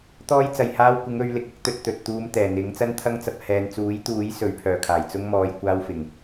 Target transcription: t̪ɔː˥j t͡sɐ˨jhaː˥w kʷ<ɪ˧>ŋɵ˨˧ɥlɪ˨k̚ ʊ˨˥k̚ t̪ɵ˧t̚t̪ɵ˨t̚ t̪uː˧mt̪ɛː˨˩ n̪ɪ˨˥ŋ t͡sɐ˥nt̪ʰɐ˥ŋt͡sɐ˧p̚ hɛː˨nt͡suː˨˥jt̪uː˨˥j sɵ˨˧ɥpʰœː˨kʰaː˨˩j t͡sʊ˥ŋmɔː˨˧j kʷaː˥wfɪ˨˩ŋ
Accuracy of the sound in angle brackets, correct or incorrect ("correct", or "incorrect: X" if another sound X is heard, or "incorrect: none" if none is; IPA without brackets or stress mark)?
incorrect: ɪ˨˥